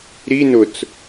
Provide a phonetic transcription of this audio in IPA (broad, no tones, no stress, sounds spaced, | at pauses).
ɾ i n ʊ t͡s